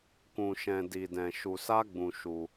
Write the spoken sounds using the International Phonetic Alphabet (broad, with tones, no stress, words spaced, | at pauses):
kũ˧ʃɛ̃˧di˧dɛ̃˧ ʃu˧sa˦ɡ͡bũ˧ ʃu˧